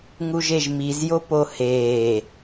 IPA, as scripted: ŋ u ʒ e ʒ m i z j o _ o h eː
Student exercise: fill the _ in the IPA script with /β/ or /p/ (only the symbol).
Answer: p